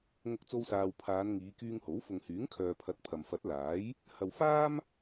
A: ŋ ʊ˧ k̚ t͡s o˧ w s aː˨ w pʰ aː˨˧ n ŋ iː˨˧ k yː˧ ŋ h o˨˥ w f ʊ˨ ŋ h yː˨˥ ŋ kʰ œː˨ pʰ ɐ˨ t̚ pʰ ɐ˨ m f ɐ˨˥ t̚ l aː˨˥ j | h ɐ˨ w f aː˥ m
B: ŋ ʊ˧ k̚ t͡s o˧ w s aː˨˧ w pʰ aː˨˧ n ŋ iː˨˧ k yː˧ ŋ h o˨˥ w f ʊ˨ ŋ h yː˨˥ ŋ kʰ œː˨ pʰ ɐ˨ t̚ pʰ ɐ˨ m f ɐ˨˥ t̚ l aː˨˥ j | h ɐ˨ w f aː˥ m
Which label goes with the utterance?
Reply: A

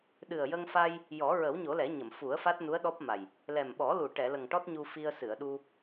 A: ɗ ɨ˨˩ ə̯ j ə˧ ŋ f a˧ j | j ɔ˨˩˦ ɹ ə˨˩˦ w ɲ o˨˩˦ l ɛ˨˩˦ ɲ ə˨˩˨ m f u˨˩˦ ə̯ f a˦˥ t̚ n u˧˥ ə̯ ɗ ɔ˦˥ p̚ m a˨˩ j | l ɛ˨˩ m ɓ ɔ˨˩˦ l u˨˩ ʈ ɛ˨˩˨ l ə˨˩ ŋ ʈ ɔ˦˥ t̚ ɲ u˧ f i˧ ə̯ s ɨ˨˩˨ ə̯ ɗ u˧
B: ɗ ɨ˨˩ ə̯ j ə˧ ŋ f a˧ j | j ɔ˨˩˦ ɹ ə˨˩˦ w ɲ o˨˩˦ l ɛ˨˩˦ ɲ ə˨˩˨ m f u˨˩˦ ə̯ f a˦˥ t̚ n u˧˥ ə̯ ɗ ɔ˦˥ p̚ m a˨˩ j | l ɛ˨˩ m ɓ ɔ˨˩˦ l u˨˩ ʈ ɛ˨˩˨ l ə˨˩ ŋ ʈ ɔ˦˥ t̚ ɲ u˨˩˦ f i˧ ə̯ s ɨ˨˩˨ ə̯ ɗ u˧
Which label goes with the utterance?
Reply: A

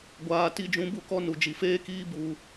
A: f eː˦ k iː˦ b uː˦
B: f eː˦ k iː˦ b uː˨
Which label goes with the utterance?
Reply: B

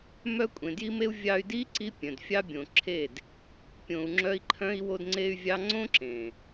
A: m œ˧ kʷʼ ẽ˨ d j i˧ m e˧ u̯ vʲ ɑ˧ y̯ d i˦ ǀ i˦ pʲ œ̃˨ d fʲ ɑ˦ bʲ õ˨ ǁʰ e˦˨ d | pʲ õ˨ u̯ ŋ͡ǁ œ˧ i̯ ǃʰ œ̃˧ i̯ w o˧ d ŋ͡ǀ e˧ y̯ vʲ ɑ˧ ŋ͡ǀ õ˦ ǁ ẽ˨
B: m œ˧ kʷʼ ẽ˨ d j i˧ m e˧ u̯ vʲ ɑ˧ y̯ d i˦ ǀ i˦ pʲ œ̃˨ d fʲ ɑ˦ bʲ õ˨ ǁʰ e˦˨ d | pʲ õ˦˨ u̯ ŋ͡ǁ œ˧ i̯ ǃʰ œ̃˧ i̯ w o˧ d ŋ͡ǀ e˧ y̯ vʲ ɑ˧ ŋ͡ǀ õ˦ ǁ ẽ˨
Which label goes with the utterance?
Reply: A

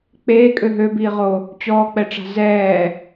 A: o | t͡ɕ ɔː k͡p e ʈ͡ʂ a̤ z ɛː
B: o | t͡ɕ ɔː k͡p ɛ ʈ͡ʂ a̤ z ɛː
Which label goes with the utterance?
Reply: B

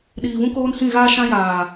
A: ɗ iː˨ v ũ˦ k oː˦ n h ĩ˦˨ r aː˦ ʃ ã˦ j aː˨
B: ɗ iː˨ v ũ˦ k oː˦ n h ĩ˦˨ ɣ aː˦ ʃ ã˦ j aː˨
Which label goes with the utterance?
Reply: B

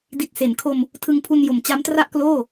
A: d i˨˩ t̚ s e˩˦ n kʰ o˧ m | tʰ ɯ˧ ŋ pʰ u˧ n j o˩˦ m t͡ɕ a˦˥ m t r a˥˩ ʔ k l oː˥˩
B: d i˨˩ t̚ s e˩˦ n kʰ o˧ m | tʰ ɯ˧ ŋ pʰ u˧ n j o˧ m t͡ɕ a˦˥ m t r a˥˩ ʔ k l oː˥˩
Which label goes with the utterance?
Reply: A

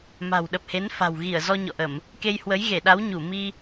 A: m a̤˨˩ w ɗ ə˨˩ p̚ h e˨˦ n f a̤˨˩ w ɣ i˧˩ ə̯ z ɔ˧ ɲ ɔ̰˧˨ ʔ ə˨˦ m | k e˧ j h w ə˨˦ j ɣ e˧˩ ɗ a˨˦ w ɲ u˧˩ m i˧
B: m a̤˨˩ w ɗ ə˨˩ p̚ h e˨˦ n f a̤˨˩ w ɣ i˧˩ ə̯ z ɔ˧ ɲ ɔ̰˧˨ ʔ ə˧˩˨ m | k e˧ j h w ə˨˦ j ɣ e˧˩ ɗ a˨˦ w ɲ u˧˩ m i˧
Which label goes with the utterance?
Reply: B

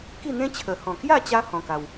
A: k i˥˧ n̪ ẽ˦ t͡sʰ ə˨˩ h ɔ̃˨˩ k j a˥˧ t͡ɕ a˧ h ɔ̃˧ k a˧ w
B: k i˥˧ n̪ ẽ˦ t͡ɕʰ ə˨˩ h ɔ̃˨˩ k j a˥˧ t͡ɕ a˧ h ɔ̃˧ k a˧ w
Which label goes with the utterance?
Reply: B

